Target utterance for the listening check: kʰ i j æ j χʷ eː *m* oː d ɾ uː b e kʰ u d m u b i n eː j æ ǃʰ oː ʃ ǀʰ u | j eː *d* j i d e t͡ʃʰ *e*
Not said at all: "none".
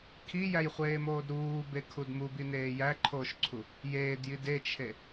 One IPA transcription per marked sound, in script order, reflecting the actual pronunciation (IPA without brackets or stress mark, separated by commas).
m, d, e